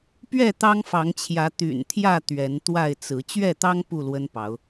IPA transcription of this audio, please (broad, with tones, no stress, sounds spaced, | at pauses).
p ɥ ɛ˥˨ t̪ ɑ˦ ŋ f ɑ˨˦ ŋ t͡ɕʰ j ä˨˦ t̪ y̰˨˩ n t̪ʰ j ä˥˨ t̪ ɥ ɛ˨˦ n t̪ w a˥˨ ɪ̯ t͡s ɹ̩˨˦ t͡ɕ ɥ ɛ˥˨ t̪ ɑ˦ ŋ p u˥˨ l w ə˦ n p ɑ˨˦ ʊ̯